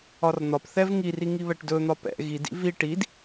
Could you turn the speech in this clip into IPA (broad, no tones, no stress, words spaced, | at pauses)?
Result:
ɒrn̪ɒpθɛv ŋiri ŋiβɛʈdɵn̪ɒ pɛ̰ ɣidḭ vi ʈid